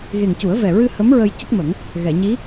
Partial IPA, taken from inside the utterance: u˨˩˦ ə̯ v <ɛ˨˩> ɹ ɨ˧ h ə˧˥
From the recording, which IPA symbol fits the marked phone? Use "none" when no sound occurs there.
ɛ˨˩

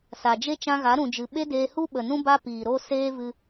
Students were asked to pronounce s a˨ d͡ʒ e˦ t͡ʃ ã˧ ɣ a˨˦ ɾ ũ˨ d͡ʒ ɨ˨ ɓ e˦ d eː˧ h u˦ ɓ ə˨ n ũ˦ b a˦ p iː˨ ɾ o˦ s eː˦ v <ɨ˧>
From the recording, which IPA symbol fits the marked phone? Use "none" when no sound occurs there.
ɨ˧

